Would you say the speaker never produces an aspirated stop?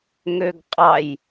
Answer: yes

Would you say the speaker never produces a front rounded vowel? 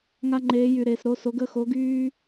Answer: no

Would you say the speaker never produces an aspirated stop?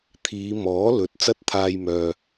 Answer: no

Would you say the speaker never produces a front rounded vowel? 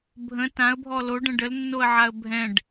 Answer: yes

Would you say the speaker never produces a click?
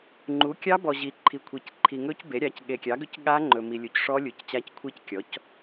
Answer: no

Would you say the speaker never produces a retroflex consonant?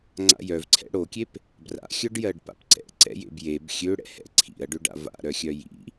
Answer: no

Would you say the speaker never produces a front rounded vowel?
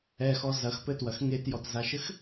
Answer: yes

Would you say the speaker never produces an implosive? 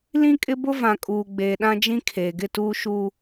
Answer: no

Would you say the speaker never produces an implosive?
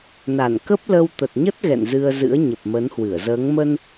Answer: yes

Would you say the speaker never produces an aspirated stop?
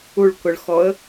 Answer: yes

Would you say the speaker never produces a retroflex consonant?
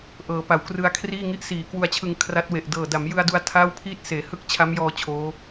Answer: yes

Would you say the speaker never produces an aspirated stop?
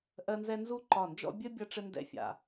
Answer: yes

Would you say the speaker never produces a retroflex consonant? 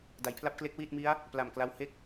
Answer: yes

